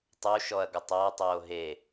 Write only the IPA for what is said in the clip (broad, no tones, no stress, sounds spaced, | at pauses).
tˤ u ʃ ɔ ɐ̯ ɡ ə tˤ a tˤ oː ɦ e